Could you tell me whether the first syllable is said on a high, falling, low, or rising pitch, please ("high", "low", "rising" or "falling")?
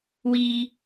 high